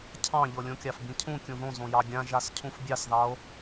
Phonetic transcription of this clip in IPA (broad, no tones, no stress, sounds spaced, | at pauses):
cʰ ɑ̃ ʎ ɤ lʲ õ kʲ ɑ f b ĩ cʰ ũ kʲ ũ ð õ z õ j ɑ ɡʲ ã ʒ a s cʰ ũ f bʲ ɑ s ð ɑ o̯